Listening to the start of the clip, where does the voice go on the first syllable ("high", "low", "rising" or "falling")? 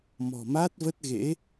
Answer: low